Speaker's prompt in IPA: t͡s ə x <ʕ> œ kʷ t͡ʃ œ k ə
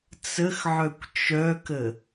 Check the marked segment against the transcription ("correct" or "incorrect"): correct